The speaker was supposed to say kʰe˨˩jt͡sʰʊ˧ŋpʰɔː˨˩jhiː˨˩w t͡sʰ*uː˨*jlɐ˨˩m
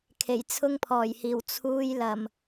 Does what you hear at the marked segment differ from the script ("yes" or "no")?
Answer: yes